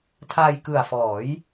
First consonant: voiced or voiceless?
voiceless